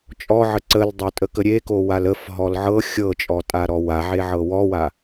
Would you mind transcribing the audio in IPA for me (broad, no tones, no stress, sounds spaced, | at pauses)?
t͡ʃʼ ɔ ʕ ə ǀ ə l dˤ o tʼ ə k ə ɾʲ e k o w a l ə f ɦ ɔ l ʕ ɤ xʲ ɤ t͡ʃʼ ɔ tʼ a ɾ ɔ w a ʕ e ʕ ɤ w ɔ w a